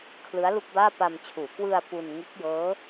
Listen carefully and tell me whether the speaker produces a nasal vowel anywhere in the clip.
no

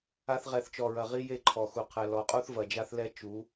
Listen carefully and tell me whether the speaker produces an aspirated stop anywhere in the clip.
yes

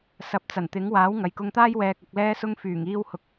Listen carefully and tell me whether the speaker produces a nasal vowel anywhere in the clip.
no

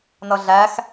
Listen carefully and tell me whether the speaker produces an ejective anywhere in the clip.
no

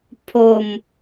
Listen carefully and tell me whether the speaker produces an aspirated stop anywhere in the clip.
yes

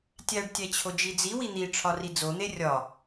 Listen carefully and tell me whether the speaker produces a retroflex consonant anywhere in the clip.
yes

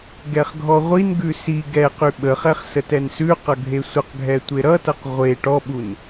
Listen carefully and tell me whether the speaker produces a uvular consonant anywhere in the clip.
yes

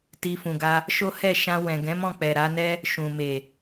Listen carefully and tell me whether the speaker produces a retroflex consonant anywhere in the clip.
no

